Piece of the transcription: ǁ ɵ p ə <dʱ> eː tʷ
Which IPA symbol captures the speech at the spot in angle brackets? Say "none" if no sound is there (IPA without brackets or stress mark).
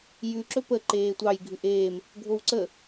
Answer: ǃ